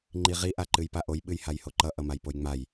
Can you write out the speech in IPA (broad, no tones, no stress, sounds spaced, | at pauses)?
ŋ͡ǃ i ʁ i ʔ a ǃ ɨ j p a ʔ o j ɓ ɨ j h a j h o ǃ ʌ ʔ ʌ m a j p o j ŋ͡m a j